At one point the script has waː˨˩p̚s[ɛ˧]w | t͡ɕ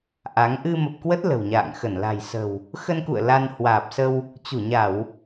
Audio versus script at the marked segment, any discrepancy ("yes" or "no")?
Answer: yes